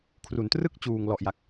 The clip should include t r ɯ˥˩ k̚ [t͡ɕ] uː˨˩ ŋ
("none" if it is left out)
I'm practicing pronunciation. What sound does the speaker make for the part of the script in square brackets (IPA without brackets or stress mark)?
t͡ɕ